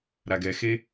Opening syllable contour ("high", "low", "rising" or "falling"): low